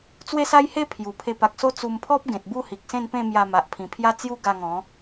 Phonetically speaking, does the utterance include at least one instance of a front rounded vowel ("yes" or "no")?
no